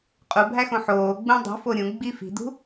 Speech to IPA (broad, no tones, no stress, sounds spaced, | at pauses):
qʼ u bʱ æ x õ ħ oː ɡ͡b ũ dˤ ṳ f o ɾʲ ũ ɡ͡b i f i̤ d ṳ